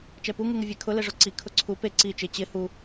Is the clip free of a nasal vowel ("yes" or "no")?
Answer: yes